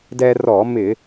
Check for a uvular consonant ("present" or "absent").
absent